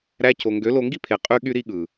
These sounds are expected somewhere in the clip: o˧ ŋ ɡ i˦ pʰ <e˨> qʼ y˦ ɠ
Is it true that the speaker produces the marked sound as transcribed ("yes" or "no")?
yes